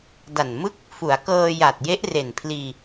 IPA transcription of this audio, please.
da˨˩nmɯ˥˩k̚ | fu˩˦a̯kɤː˧ja˨˩t̚je˦˥ʔ re˨˩npʰliː˧

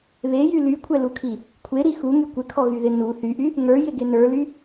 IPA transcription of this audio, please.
βejy lykʷʰɛlukʰi | kʷʰeɾi xuŋy kʷɪkʰɔɣyðɪ nu θyʔy | ŋə˞jɪɡe nə˞ly

